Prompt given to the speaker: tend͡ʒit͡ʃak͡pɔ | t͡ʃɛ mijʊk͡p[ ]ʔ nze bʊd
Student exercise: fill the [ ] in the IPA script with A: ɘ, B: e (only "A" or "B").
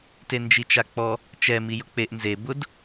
B